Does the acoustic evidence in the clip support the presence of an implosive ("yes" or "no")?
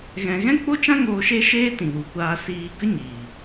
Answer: no